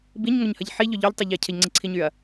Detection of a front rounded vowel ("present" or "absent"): present